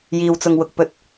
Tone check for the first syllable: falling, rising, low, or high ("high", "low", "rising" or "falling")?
low